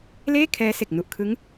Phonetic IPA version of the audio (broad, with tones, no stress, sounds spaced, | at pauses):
l eː˥˩ kʰ ɛː˦˥ s e˨˩ k̚ n u˨˩ ʔ kʰ ɯ˦˥ ŋ